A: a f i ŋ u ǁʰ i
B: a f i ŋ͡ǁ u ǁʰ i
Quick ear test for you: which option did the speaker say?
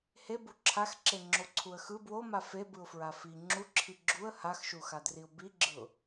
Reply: B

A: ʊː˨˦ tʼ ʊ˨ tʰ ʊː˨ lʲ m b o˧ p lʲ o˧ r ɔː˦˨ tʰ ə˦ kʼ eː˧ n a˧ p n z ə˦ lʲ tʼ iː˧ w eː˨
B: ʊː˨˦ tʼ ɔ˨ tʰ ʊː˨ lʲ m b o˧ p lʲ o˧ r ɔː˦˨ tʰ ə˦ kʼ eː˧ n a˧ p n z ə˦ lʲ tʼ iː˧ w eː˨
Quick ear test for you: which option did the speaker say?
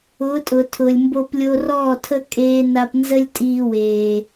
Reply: A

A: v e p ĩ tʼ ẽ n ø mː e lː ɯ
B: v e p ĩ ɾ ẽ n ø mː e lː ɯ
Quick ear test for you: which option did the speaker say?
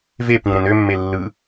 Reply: B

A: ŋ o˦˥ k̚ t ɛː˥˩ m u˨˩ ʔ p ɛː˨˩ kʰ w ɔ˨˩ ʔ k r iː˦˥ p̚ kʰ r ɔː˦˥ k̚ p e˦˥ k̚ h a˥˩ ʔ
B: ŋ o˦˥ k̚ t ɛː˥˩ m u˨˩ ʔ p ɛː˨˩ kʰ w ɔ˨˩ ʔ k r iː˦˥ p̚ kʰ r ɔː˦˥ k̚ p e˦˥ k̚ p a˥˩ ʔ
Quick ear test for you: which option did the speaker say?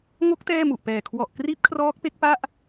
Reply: B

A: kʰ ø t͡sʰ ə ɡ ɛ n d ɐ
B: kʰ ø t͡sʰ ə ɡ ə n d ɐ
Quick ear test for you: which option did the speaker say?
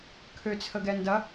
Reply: A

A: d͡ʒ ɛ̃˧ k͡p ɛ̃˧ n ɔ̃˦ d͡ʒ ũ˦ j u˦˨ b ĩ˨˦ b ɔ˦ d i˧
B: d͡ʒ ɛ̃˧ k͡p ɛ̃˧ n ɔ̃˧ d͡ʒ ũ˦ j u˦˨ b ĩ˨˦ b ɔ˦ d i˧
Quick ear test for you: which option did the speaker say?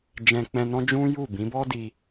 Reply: A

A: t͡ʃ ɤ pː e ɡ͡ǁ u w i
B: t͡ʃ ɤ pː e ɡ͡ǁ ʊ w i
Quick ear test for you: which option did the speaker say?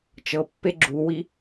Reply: A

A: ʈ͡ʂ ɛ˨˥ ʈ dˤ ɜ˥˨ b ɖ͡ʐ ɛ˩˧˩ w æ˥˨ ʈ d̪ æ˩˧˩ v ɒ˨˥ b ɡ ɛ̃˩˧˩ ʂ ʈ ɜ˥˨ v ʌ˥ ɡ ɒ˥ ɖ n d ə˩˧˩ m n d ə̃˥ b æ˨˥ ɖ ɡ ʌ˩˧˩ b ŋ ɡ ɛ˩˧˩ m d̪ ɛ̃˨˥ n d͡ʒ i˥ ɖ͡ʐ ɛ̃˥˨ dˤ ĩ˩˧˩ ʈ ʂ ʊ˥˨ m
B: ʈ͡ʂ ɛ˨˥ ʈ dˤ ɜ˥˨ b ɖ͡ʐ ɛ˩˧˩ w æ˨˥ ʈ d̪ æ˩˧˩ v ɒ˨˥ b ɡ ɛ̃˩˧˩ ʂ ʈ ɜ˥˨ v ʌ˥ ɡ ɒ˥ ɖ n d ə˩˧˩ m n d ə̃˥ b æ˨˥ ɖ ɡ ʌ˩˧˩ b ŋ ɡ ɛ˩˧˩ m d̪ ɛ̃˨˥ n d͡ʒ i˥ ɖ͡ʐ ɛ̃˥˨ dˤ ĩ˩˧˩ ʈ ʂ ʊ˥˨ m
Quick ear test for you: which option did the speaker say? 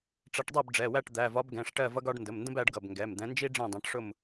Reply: A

